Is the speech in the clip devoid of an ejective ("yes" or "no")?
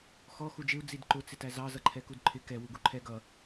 yes